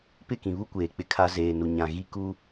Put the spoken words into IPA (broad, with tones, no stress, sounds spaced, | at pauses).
p ɪ˦˨ k ĩ˨ β u˦ kʷ eː˨ k͡p ɪ˦ kʰ a˦ z eː˨ n u˨ ɲ ã˨ ɣ i˦ k u˦